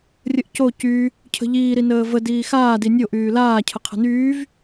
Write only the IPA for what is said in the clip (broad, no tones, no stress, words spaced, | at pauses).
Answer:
rʲəʔco cy | cʰə̤ʎiː ɾinəːvə diːxaː dinʲo ʔyːlaː cʰəqʰə̤nyːv